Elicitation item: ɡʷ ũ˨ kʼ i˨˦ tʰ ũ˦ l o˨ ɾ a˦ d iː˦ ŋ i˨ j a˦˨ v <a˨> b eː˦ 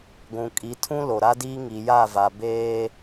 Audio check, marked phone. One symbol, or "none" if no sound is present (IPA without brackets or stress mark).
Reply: a˨